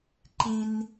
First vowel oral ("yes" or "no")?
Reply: no